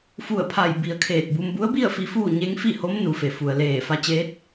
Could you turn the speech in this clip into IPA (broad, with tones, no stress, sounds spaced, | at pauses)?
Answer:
f u˧˩ ə̯ pʰ a˧˩ j b i˩ ə̯ kʰ eː˧˩ t̚ b u˧ m b u˧˥ ə̯ b i˥˨ ə̯ f i˧˥ f uː˥˨ ɲ e˧˥ ŋ f i˥˨ h o˧˥ m n u˩˧ f e˩ f u˩ ə̯ l eː˧˩ f a˧ t͡ɕ eː˧˥ t̚